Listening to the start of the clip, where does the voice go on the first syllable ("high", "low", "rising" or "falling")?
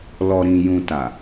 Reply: low